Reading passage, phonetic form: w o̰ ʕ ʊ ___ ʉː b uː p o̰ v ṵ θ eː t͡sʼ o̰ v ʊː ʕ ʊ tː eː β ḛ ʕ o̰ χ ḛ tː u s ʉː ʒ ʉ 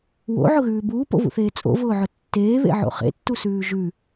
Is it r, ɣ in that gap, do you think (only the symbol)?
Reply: ɣ